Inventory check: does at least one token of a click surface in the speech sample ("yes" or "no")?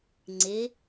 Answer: yes